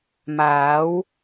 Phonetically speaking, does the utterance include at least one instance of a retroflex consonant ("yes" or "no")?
no